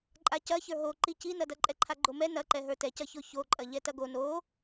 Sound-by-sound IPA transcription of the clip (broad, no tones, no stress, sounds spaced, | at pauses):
ǃʼ a c ɐ ç ə˞ ɦ o ǃ i c i n ɐ d ɐ ǃʼ ɛ ǃʰ a ɡ͡ǃ o m ɛ n ɐ ǃ ɛ ɦ ə˞ t ɛ c ɐ ç o ç o ǃʼ ɐ ʎ ɛ t ɐ ɡ o n o